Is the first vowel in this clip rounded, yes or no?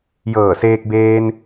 no